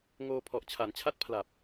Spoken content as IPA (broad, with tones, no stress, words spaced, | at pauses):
ŋoː˧ pʰɔ˨˩ʔt͡ɕʰa˩˦nt͡ɕʰa˥˩t̚pʰla˨˩p̚